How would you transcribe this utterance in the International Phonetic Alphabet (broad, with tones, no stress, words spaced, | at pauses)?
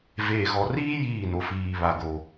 veː˨ɣɔ˨riː˦ jiː˦˨no˨fiː˨βa˨ ɡo˨